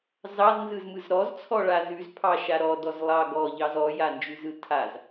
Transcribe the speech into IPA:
z ɑ z n z ɯ z m ɯ z ɾ ɔ z t͡sʰ ɔ ɭ a z ʉ z pʰ ɑ ʃ a ɾ ɔ d ɔ z lˠ ɑ ɡ ɔ ʎ ɑ z ɔ j a n d͡ʒ ʉ z ɯ tʰ a z

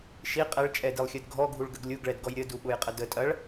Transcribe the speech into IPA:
ʃ i qʼ ɛ ɭ t͡ʃʼ ɛ d i lˠ xʲ ə d ɡʱ ɔ ɡʱ u ɭ ɡ ə ɡ lʲ u ɡ ɭ ɛ d ɡ ɔ j ɾʲ ə d u ɓ ʊ j qʼ ə d ə tʼ ɐ ɭ

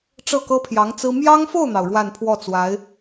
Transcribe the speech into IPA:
ʈ͡ʂ ɤ˥˩ k ɤ˥ pʰ j ɑ˧˥ ŋ t͡s ɹ̩˥ m j ɑ˥ ŋ f o˥˩ ʊ̯ n̪ ɑ˩ ʊ̯ ɻ w a˥˧ n pʰ w ɔ˥˩ t͡s w a˧˥ ɪ̯

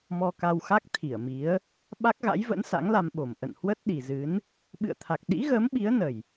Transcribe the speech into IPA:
m ɔ˧ k a˧ w x a˦˥ k̚ t̪ʰ i˧˩ ə̯ m i˨˦ ə̯ | ɓ a˦˥ k̚ ɣ a̰˧˥ j v ə̰˧˥ n s a̰˧˥ ŋ l a˧ m ɓ o˨˩ m ʔ ə̰˧˨ n h w ə˦˥ t̚ ɗ i˨˩ z ɨ˨˦ n | ɓ ɨ̰˧˨ ə̯ t̪ʰ a˨˩ k̚ ɗ ḭ˧˥ ɣ əː˨˦ m ɓ i˨˦ ə̯ n ə˨˩ j

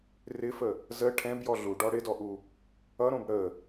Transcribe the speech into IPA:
r ɪ f ə | z ə ʈʰ ɛ̃ b j ɔ ɮ u ɖ ɔ ɽ ɪ d ɔ ʔ u | ʌ ɾ õ b ɽ ə

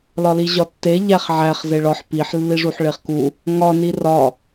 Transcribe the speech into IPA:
l ɒ l i ʑ ɒ tː e ʎ æ χ ʕ æ χ z e ɭ ɒ ħ p i ħ lː i ʐ u ħ ɭ e χ k u | ŋ ɒ n i r ɒ

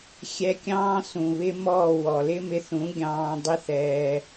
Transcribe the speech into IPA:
xʲ ɛ˧ kʲ ɑ̃ː˦ s ũ˨ β ɪ˦ m ɔː˦˨ w ɔ˨ l ɪ˦ m ɪ˧ θ ũ˨˦ ɡʲ ɑ̃ː˧ dˤ ɪ˦ θ ɛː˧

